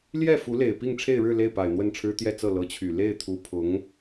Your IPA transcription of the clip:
ljɛ˥˩ fu˧˥le˨˩ɪ̯ pi˥˧ŋʈ͡ʂʰe˥˧ɪ̯ɻɻ̩˥˧ le˥˩ɪ̯pa˨˩ɪ̯ n̪wə˥˩nʈ͡ʂʰɻ̩˥ t̪jɛ˥˧t͡sɤ˥˩ lɤ˧˥t͡ɕʰy˨˩ le˥˩ɪ̯t̪ʰu˧˥pʰʊ˧˥ŋ

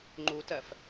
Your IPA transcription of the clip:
ŋ͡ǃutɜf

